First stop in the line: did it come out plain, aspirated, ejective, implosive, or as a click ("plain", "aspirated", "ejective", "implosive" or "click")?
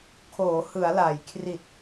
aspirated